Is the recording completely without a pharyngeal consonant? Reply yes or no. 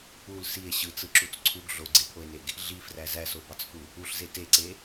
yes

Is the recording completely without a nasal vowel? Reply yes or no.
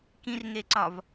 no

